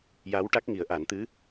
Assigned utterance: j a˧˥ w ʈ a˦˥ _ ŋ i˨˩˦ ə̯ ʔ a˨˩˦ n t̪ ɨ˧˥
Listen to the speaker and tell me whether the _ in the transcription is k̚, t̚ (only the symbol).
k̚